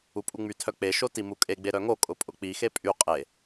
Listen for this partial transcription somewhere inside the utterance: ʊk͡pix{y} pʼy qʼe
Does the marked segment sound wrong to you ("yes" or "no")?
yes